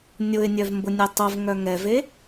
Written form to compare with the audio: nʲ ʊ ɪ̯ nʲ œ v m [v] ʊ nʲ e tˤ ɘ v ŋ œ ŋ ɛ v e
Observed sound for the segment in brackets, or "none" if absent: b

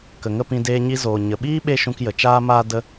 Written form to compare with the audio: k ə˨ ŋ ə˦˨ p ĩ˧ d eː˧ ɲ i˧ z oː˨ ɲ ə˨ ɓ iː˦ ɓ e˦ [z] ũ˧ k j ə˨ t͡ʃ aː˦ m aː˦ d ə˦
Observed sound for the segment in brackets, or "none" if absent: ʃ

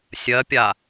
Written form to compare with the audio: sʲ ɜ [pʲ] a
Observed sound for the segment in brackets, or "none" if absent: pʲ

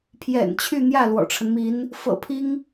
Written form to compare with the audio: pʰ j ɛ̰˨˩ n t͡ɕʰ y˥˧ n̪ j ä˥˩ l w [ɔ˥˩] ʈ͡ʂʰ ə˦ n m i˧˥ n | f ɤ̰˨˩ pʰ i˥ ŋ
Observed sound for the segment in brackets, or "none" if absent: ɔ̰˨˩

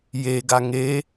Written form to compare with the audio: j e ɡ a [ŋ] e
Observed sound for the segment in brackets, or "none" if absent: ŋ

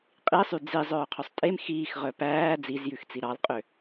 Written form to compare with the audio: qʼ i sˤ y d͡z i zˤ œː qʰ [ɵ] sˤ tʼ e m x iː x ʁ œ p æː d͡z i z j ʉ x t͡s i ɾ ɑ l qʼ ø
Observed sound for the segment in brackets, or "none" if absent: ɵ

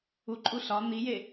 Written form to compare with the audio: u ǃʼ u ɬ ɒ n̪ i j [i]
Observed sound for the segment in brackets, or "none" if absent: e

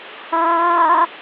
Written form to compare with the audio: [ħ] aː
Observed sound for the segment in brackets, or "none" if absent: h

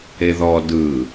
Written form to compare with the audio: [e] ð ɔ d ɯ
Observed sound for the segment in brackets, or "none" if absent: e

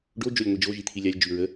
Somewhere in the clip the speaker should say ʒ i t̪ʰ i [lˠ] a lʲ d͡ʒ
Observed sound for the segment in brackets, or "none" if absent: lʲ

